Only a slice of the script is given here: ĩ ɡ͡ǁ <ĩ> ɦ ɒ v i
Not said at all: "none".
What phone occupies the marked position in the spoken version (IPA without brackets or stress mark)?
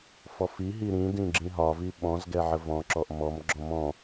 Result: ĩ